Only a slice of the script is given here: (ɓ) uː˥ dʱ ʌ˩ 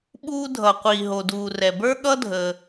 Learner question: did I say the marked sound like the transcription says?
yes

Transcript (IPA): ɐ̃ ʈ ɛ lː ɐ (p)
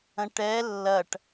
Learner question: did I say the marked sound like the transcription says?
no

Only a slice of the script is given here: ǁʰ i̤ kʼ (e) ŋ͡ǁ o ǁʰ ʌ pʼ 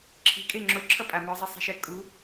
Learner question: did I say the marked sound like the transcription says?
yes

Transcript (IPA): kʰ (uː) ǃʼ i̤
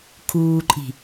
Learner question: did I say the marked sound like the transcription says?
yes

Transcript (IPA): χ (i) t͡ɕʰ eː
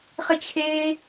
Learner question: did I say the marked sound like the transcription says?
no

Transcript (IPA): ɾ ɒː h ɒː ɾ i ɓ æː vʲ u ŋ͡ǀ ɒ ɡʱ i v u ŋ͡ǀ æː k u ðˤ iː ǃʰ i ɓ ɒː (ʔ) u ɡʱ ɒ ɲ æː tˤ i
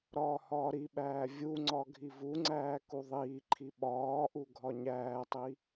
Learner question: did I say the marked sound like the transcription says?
yes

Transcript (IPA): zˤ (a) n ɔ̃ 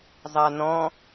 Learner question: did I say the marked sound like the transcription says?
yes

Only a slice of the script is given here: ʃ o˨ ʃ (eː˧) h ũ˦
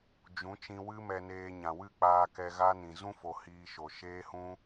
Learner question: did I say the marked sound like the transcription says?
no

